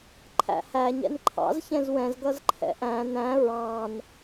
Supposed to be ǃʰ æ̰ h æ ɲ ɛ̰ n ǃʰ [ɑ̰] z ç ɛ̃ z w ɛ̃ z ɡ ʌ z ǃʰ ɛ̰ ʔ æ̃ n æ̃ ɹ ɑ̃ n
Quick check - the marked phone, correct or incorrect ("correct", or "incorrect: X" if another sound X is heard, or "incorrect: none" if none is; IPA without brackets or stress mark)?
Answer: correct